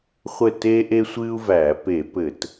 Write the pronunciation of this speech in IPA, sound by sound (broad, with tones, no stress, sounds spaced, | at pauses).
χʷ ɘ˥˩ t eː˥ ʔ e˥ sʷ ɨː˥ u̯ v æː˧˩˧ p e˧˩˧ p ɘ˧˩˧ t